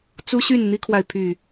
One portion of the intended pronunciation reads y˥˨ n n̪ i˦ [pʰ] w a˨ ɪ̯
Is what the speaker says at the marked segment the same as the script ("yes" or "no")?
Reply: no